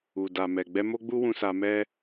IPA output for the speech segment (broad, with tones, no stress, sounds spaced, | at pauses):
u˨ d a˨ m ɛ˨ ɡ͡b ɛ˧ m o˦ ɡ͡b u˦ w ũ˧ s a˧ m ɛ˦